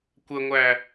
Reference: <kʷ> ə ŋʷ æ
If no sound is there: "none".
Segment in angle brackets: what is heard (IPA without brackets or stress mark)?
kʷ